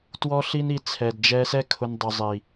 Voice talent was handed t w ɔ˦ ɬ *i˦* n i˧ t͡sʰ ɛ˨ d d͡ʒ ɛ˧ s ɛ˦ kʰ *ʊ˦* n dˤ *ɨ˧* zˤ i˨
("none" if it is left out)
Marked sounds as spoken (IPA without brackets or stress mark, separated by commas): i˦, ʊ˦, ʏ˧